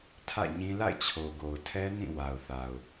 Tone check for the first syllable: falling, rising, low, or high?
falling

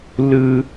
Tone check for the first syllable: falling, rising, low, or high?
high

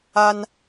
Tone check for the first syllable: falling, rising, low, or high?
high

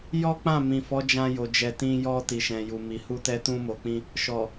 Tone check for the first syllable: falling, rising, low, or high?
high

